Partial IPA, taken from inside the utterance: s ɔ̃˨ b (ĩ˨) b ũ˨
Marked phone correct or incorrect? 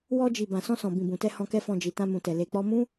correct